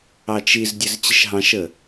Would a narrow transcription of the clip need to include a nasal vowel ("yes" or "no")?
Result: yes